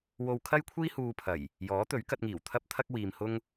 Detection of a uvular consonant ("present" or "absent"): absent